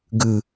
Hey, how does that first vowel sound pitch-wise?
low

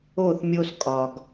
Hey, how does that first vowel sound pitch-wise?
falling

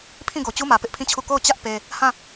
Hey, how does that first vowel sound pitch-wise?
falling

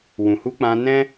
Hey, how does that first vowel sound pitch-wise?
low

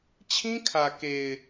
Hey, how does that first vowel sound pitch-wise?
high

